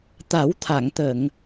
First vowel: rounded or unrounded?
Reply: unrounded